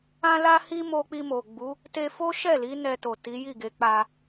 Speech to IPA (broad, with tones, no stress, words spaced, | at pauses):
ã˦la˦hi˦ mo˦ k͡pi˧mo˨ɡ͡bu˨˦ | te˧fo˦ʃɛ˦˨li˨˦ nɛ˧to˨ ti˨˦ji˦˨ɡe˨˦ k͡pa˧